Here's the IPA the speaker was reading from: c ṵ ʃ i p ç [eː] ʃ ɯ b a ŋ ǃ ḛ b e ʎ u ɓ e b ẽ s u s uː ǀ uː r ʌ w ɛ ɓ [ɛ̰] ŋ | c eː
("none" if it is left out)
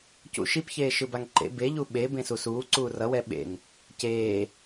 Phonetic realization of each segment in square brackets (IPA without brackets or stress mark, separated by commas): eː, ḛ